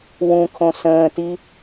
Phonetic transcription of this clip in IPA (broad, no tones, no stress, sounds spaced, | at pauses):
w ũ kʰ õ s ə̃ː t i